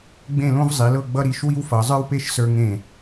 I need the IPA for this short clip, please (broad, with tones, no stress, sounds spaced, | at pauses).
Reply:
ɡ͡b ẽ˥˧ l õ˥ v zˤ i˩˧ l ɤ˥˧ ɡ͡b ʌ˥ ɾ i˩˧ ʃ w i˥ w f ʌ˩˧ zˤ ə˞˥ w p e˥˧ ʃ s ə˞˧ ŋ ẽ˧˩